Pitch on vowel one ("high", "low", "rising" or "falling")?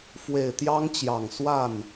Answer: low